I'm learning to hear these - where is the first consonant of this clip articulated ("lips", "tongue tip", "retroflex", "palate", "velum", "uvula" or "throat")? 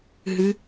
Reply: throat